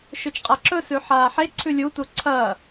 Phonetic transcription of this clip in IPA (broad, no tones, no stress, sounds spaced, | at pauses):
ʃ ɵ t͡ʃ qʼ a ǁ ɵ s ʉ ħ aː ħ e ǀʰ ʉ lʲ u t u ǀʰ ɐː